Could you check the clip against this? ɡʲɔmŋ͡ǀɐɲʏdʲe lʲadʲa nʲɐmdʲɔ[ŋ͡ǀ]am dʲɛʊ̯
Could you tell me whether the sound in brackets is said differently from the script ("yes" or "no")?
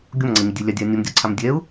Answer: yes